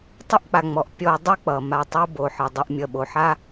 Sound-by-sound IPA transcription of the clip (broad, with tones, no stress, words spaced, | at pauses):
tˤʌ˥ʔk͡pa˩ŋ͡mɔ˩ʔ pʲɔ˨ dˤʌ˦k͡pʌ˩ ma˨tˤo˦bo˩ ħə˩dˤə˨ʔ mʲʌ˨ɓo˩ ħa˥